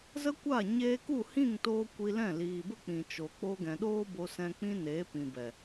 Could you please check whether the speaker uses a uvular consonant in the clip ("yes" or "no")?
no